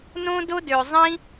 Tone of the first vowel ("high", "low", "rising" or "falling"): high